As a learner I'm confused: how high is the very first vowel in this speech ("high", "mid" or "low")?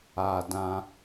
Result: low